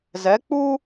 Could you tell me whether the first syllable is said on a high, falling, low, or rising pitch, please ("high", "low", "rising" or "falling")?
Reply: rising